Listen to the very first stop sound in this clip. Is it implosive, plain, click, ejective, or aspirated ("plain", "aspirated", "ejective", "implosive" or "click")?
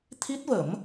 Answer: aspirated